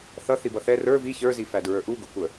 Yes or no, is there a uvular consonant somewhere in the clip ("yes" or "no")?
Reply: no